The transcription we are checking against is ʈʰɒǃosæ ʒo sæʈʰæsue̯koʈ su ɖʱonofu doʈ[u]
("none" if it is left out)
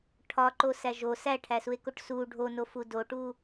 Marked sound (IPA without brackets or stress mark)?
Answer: u